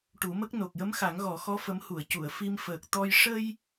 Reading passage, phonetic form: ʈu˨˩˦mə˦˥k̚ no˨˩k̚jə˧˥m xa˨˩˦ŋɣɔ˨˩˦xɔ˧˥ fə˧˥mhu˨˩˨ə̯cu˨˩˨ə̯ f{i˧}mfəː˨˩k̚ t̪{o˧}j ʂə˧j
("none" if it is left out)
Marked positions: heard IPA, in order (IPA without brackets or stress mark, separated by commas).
i˧, ɔ˧